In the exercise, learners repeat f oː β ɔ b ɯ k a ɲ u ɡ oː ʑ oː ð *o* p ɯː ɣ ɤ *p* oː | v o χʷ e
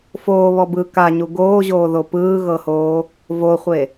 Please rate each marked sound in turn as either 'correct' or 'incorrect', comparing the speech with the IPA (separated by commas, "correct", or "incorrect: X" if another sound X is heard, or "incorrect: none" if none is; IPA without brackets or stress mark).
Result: correct, incorrect: h